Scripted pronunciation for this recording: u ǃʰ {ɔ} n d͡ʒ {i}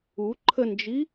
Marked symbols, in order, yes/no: no, yes

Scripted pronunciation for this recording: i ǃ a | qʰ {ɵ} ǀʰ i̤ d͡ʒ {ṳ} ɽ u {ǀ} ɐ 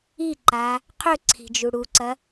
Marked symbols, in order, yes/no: yes, no, yes

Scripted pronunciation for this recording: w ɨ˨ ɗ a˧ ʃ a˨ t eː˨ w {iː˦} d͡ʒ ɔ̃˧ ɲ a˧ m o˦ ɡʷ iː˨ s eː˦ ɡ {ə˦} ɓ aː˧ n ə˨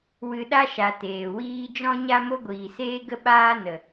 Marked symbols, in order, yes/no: yes, yes

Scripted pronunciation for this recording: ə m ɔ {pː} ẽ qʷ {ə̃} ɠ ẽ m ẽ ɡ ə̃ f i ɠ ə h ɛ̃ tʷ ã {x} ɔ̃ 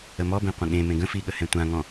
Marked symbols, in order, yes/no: no, yes, no

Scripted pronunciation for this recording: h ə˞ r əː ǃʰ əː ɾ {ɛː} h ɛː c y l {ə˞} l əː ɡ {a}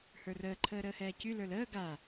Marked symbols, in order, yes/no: no, yes, yes

